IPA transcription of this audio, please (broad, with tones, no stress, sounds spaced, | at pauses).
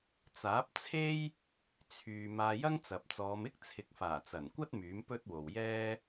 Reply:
t͡s aː˨˥ p̚ t͡sʰ e˥ j | t͡sʰ yː˧ m aː˧ j ɐ˥ ŋ t͡s ɐ˨ p̚ t͡s ɔː˨˧ m ɪ˥ k̚ t͡sʰ ɪ˨ k̚ f aː˨˩ t͡s ɐ˨˩ n kʷ ɐ˥ t̚ m yː˨˥ m p ɵ˥ t̚ w o˨ w j ɛː˥